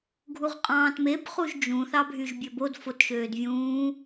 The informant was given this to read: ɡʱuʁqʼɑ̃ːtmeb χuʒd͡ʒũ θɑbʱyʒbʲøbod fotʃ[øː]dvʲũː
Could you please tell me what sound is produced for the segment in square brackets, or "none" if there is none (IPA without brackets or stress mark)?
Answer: øː